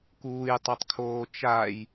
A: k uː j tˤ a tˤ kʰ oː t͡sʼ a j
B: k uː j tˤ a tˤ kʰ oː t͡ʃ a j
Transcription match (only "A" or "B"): B